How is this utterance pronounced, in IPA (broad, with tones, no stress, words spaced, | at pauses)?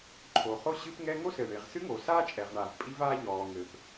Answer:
ǃʰo˩χo˥ɕɨ˥pŋɛ˥ ŋo˥sɘ˩ɳe˩ʁ sɨ˥ŋo˩saː˥ t͡ʃʼɛ˩ʁɳaː˩v pʼi˥vaː˥ʎɔː˩ ŋɘː˩p